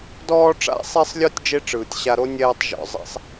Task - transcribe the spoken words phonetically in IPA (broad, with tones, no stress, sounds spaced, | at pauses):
d ɔː˧ ʈ͡ʂ a̰˧ sˤ e˧ sˤ lʲ ɔ˧ tʲ d͡ʒ e˦ ʈ͡ʂ ɯː˨ tʲ ɕ a˧ ɾ o˦ nʲ ɛː˧ tˤ ʒ ɔ̰˨ zˤ ɛ̰˦ sˤ